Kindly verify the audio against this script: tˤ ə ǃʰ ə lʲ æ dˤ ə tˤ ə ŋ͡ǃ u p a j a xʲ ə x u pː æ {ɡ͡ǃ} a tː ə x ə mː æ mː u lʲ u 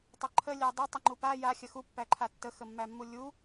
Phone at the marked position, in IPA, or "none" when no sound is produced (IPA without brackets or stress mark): ǃʰ